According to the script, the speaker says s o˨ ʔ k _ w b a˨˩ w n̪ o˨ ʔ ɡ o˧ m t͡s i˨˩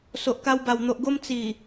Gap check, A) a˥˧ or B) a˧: B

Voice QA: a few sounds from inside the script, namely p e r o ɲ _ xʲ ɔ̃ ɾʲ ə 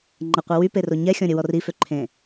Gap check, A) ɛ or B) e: A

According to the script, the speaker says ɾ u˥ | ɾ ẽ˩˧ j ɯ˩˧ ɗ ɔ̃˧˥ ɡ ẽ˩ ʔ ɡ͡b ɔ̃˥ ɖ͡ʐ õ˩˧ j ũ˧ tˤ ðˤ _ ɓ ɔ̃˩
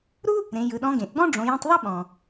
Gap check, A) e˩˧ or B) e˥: B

